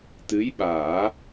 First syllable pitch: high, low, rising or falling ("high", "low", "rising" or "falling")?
rising